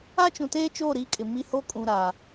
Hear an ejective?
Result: yes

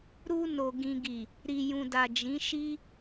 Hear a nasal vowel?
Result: yes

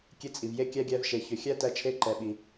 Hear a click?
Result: yes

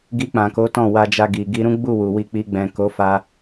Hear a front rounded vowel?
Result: no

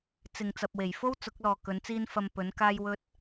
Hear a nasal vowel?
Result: no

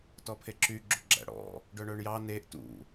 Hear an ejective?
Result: no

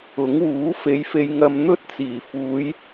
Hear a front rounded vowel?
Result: no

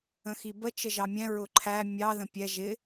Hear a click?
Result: yes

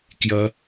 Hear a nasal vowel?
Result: no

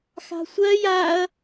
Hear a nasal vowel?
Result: no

